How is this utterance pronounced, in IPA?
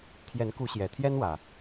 t̪ʰ j ɛ˨˦ n k u˨˦ ɕ j ɛ˨˩ t̪ʰ j ɛ˦ n w ä˨˩

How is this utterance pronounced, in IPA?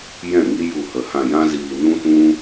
j ɛ̃˦˨ ŋ i˦ j u˦˨ h ə˧ h ã˧ j ã˦ z iː˧ n ũ˦ t ũ˦

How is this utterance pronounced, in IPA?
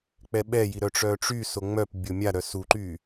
k͡p ɛ ɓ ɛ j i ɾ œ ʈ͡ʂ œ ʈ͡ʂ y s o ŋ͡m œ p bʲ o mʲ a ɾ œ s u ǃ y

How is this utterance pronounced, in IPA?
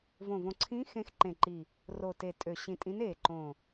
v õ˨˩ v õ˨˩ ǀʰ ĩ˨˦ x ẽ˨˦ x ǃ ẽ˨˩ ǃ i˨˩ | r o˨˩ t e˨˩ tʼ ø˨˩ ɕ ĩ˨˩ tʼ ĩ˨˦ n e˨˩ ǃ õ˨˩

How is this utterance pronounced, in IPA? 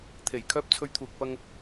t̪ʰ e˨˩ j kʰ œː˧ p̚ t͡sʰ ɵ˨˧ ɥ t̪ʰ uː˨ k̚ p ɐ˧ ŋ

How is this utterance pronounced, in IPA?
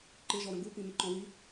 ǃ ɪ ʒ ɔ ɾ ə̃ ɡ u p ĩ m ɪ ǃ ɔ̃ w i

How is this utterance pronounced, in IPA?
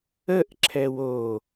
ə ʔ ǁʰ ɛ w o

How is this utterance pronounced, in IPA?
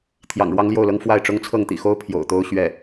t̪ʰ j ɑ̰˨˩ ŋ ɻ w ɑ˥ ŋ l j o˥˩ ʊ̯ l ɤ˥ ŋ f w a˥˩ ɪ̯ ʈ͡ʂ ʊ˥ ŋ t͡sʰ ɤ˥˩ ŋ t̪ ḭ˨˩ x o˥ ʊ̯ pʰ j o̰˨˩ ʊ̯ t̪ o˥ ʊ̯ ɕ ɥ ɛ˥˩

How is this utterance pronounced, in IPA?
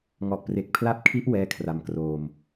ŋ ɔ˨˩ ʔ p r e˨˩ k̚ pʰ l a˦˥ p̚ kʰ i˦˥ ʔ w ɛː˥˩ kʰ r a˧ m k r oː˧ m

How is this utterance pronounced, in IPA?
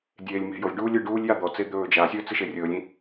dʲ eː lʲ m e̤ j o lʲ ɖ uː lʲ ɨ ɖ uː lʲ j a d̪ ɔ t͡s e d̪ ɵː d͡ʒ a sʲ ɵː t͡s ɨ ʃ e rʲ ɵː lʲ ĩ

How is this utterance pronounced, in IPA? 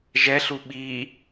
ʒ ɛ ɬ u ɓ i

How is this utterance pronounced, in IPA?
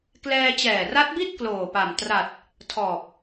k l ɛː˧ t͡ɕ ɛː˨˩ r a˦˥ t̚ b i˥˩ t̚ k l oː˨˩ p a˨˩ m t r a˨˩ t̚ | tʰ ɔː˨˩ p̚

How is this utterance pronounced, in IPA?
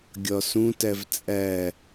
ɡʲ ɒ s ũ t æ v t͡sʼ æ

